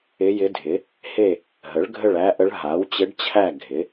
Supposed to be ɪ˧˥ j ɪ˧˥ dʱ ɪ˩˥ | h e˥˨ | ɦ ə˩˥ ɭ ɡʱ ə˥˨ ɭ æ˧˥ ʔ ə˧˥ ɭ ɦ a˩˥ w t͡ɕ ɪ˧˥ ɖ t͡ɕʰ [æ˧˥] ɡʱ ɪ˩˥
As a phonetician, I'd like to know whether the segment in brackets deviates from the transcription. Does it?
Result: yes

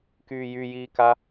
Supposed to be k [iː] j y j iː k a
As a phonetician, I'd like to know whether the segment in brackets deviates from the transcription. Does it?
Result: yes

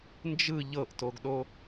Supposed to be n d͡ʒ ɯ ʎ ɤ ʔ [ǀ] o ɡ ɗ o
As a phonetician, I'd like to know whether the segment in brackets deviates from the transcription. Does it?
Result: yes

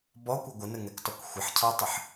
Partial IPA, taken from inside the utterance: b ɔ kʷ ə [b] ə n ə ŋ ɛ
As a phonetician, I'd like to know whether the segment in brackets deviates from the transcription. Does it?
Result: yes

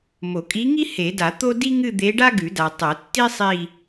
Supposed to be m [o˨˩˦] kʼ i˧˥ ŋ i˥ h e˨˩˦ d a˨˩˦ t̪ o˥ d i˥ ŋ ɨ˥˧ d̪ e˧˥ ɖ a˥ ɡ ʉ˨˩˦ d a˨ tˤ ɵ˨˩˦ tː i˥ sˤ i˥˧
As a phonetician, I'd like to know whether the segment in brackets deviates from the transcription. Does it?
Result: no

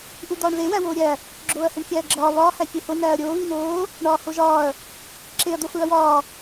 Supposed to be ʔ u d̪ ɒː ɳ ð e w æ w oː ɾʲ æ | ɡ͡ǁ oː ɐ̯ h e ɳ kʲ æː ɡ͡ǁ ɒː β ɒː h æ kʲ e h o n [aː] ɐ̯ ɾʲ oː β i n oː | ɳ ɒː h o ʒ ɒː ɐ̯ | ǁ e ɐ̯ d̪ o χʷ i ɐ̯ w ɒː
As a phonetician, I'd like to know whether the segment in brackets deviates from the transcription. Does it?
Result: yes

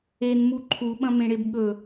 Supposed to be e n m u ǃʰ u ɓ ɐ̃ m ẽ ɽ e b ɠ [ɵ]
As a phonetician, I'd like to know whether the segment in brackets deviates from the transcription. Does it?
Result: no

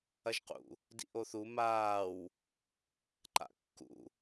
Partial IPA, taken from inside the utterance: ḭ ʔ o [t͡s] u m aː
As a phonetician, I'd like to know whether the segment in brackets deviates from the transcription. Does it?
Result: yes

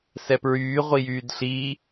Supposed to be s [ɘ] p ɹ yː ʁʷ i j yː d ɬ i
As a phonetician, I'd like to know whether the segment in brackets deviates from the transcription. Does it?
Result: yes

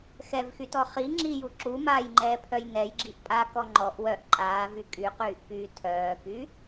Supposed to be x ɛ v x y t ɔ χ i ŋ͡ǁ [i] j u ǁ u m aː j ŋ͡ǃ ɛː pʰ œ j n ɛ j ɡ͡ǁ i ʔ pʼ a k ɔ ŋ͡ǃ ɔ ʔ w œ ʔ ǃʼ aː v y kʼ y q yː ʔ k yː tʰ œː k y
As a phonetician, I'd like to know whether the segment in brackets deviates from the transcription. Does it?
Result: no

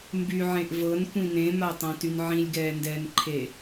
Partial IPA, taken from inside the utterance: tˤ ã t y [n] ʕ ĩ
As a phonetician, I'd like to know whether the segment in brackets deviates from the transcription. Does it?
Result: no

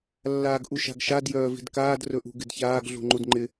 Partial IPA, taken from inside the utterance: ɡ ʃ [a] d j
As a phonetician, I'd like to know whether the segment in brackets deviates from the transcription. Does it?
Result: no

